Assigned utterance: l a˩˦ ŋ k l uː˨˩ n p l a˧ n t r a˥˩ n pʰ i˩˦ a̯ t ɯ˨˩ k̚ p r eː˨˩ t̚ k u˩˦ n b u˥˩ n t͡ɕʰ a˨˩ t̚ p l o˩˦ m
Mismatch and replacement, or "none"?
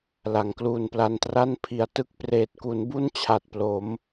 ɯ˨˩ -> ɯ˦˥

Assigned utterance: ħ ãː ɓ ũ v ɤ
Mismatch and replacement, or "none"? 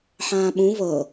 none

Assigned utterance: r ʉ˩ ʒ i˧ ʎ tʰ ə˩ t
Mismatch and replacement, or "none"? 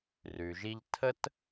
ə˩ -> ə˥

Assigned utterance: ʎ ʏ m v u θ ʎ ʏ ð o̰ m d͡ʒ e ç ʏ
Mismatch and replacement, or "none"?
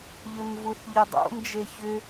ð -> dˤ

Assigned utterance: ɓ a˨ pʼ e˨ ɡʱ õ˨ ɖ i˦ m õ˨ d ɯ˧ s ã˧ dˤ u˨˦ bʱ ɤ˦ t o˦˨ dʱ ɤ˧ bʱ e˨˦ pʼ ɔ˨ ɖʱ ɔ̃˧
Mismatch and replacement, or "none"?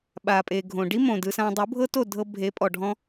none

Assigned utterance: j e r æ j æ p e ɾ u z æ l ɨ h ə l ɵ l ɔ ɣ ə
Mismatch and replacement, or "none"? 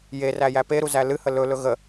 ɔ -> ɵ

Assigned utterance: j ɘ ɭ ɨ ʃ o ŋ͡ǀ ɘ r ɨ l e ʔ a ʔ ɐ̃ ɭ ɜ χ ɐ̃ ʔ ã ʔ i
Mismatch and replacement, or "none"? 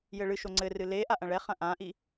ɜ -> ɛ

